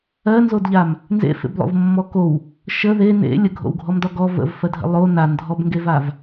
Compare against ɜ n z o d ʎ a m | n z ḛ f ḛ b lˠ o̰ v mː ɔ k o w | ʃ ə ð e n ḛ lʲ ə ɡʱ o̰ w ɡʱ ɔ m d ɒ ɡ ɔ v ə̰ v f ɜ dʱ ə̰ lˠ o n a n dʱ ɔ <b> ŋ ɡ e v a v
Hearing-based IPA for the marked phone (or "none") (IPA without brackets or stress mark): b